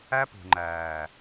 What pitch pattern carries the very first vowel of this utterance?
high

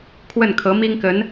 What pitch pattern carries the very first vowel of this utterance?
falling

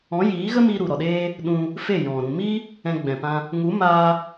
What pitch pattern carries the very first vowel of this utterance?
rising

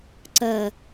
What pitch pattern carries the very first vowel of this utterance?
low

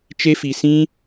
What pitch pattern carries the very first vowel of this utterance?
high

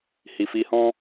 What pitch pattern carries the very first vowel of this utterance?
low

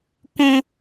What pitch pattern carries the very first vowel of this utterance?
high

